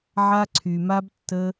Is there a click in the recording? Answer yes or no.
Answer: yes